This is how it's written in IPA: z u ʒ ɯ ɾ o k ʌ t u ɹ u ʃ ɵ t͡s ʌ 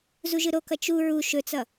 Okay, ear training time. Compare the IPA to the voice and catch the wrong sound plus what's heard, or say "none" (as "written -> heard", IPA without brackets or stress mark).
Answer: t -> t͡ʃ